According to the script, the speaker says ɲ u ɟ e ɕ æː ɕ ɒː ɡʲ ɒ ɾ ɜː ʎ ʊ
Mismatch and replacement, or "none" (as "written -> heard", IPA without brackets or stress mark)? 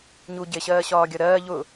æː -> ɜː